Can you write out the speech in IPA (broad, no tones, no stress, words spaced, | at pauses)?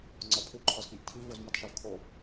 ŋ͡ǀɒpʰu ǃʰɒzk͡piʔtʰi vozmitˤʃɒvkʰo